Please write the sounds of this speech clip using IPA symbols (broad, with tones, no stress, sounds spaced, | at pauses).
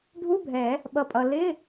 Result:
ɖʱ u˧˥˧ bʱ ɛ˨˩˦ | ɓ ʌ˩ pʼ ʌ˩ l ɪ˧˥˧